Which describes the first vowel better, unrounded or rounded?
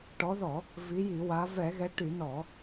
rounded